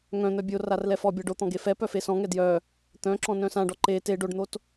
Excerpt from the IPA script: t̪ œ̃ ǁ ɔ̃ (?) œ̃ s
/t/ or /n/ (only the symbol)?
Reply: n